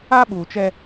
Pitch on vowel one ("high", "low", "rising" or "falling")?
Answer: high